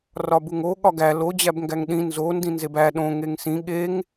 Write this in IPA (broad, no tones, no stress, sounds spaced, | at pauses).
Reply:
r ɒ b u ŋ o ɠ ɒ ɡ æ l o d͡ʑ æ b ŋ ɡ æ ŋ ɗ ĩ n z o n d ĩ n z e b æ ɗ õ ŋ e ŋ s ĩ ɠ e ŋ